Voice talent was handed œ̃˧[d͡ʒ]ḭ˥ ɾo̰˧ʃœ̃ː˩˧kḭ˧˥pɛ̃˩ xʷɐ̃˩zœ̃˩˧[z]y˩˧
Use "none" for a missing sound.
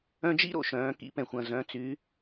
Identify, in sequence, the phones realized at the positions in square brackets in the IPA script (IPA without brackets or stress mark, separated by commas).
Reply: d͡ʒ, t͡s